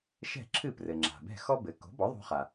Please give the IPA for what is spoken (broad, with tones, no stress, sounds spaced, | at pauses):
ʃ ɛ̤˥˩ ǁʰ ɨ˥˩ p r ɘ˩ ŋ͡ǁ a̤˩ b ɛ̤˥˩ x ɔ˥ b ɘ˩˥ k o̤˩˥ b ɔ˩˥ ðˤ o̤˧ χ a˩